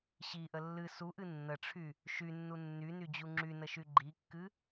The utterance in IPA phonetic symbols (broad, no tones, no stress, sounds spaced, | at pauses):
ɕ i ʔ ə lː ɨ s u ʔ ɨ nː ə ʈ͡ʂʰ y | ʃ y nː u nː y n y d͡ʑ u ŋ͡ǁ y n ə ʃ y ɡ͡ǃ i kː ɨ